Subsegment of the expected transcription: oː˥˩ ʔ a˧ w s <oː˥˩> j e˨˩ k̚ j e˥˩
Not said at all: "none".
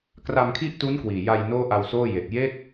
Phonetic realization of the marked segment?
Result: oː˥˩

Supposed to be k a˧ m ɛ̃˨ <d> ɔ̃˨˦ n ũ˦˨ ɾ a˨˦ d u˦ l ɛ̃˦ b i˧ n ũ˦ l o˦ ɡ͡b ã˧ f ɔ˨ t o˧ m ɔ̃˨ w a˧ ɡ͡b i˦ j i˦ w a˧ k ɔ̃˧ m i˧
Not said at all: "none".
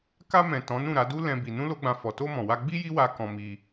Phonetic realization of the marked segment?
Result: t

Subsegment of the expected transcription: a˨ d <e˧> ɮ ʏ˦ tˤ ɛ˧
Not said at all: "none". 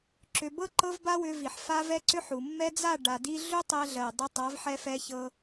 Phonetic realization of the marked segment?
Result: i˧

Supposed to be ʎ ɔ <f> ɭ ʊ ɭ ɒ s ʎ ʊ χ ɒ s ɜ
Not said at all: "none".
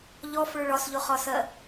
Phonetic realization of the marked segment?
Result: f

